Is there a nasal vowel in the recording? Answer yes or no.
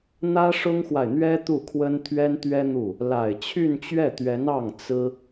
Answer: no